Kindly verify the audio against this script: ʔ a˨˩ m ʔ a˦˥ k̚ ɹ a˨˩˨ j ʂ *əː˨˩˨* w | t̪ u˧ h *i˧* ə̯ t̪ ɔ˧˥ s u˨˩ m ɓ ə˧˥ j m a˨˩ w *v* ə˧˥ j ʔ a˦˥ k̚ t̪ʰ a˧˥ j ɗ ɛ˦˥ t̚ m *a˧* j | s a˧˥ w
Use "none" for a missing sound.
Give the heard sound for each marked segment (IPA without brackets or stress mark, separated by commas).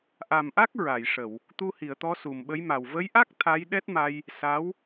ə˨˩˨, i˨˩˨, v, a˧